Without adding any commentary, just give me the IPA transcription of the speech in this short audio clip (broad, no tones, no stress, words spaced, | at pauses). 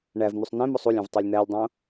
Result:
ɳæv n̪usˤnẽmosˤ ulʲẽv tˤelʲn̪ælʲdˤõ